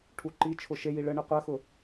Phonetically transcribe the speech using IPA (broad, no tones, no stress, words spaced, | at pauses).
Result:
ʈʰuǃit͡ʃʰʊ ʃeji ɭəɳə qʷɜxʊ